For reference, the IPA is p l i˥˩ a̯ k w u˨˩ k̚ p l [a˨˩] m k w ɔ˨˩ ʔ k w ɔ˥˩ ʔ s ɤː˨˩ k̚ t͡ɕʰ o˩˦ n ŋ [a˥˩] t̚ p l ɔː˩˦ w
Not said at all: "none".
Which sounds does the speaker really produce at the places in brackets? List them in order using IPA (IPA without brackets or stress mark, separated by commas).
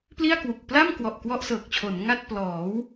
a˥˩, a˥˩